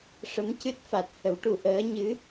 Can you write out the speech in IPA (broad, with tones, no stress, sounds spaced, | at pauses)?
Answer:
ʂ ə˧˥ m c ɨ˦˥ t̚ f a˨˩ t̚ h ə˨˩˦ w ʈ u˨˩ ʔ əː˧˥ ɲ ɨ˧˥